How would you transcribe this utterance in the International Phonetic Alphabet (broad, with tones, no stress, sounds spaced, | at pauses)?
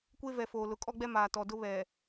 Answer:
kʷ e˦ v ɛ˨ f oː˨ l ʊ˨ kʼ ɔ˦ ɡ͡b ɛ˦ m aː˨ t ɔ˨ d ʊ˦ β ɛ˨